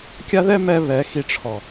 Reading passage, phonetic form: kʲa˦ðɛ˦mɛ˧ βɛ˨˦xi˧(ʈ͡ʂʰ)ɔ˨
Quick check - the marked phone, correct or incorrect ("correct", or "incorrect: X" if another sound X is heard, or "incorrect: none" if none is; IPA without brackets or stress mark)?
correct